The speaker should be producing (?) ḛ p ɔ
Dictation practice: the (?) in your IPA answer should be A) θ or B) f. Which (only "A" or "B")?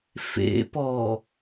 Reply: B